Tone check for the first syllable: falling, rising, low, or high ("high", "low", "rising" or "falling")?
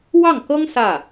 falling